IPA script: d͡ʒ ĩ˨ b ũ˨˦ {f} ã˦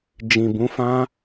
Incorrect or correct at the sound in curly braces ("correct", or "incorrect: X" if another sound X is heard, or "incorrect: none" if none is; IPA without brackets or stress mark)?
correct